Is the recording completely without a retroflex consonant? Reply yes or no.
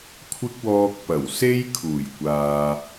yes